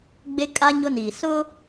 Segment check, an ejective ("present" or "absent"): present